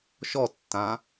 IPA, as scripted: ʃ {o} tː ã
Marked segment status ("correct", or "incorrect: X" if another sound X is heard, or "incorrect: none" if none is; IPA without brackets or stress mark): incorrect: ɔ